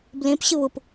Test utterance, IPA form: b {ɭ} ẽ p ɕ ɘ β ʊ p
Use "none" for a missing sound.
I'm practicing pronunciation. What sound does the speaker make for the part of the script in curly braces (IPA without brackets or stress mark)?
l